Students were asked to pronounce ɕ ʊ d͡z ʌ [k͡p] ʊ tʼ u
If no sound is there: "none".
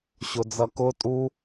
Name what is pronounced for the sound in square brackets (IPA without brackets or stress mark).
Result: k